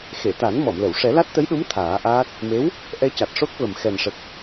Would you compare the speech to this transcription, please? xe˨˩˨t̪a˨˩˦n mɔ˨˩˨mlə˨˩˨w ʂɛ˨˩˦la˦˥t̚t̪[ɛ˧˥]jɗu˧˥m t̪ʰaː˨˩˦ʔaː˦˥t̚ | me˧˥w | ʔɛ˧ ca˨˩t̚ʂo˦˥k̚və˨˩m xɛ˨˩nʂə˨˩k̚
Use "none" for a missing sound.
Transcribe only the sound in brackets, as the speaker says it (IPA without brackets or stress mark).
ə˧˥